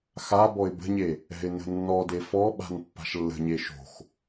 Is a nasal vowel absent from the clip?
yes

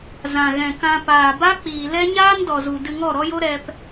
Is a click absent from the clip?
yes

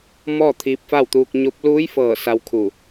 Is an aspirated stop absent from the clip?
no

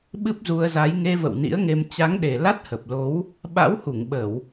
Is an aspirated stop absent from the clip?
yes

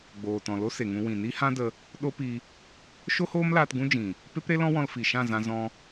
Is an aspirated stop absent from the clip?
yes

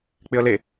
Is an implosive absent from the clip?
yes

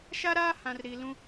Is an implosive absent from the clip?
yes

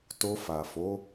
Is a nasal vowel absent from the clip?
yes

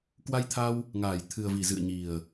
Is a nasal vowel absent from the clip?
yes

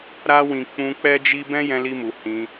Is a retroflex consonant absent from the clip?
yes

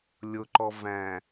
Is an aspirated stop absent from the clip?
yes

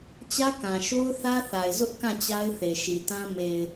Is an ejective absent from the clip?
yes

